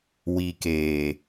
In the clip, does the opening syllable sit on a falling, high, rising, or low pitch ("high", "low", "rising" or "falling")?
low